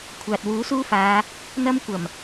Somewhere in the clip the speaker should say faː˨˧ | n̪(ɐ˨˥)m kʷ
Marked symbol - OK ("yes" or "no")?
no